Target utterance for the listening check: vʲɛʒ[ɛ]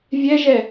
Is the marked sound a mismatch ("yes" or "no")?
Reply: no